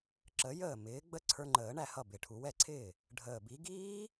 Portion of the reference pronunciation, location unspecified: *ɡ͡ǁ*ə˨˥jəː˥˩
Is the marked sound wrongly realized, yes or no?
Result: yes